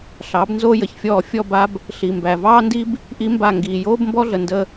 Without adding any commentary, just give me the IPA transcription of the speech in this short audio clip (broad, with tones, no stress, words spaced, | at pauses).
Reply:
ɬɑː˨˦bnzoː˦jə˨çfʲɔː˦˨ fʲɔ˦˨ba˦b | ɬi˨mbæ˨ vɑː˦ndi˦b | ʔi˦mba˦˨ ŋɡiː˨ joː˦bmbɔ˦ɮə˨ ndə˦